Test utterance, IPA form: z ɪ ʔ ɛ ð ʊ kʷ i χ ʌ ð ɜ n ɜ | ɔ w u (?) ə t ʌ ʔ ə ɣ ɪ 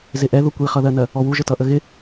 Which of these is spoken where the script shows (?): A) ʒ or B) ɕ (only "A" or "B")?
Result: A